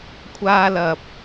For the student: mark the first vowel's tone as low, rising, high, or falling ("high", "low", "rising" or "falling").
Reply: high